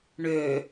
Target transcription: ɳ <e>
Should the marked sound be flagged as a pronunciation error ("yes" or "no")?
yes